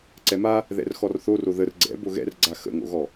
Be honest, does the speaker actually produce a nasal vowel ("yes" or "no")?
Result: no